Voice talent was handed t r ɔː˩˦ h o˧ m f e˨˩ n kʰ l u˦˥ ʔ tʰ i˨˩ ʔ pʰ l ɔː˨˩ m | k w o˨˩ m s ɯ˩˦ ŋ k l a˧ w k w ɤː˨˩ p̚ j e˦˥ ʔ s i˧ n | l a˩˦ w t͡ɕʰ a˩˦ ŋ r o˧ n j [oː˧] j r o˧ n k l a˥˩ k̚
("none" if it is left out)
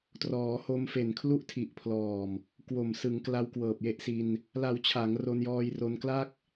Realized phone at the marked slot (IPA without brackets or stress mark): ɔː˧